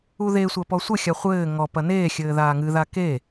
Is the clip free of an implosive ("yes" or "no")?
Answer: yes